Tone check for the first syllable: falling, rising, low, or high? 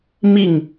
falling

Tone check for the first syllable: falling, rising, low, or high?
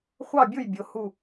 falling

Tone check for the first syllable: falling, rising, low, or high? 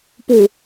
low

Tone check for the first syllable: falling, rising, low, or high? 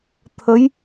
rising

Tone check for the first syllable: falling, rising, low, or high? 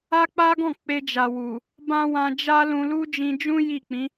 high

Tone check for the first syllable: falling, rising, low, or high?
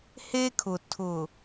high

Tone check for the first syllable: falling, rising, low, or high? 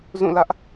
falling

